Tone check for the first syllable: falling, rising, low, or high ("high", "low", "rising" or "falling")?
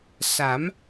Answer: rising